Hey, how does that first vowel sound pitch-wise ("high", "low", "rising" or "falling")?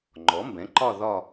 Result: rising